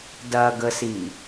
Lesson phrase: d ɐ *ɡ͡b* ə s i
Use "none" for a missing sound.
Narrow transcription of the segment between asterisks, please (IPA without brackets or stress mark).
ɡ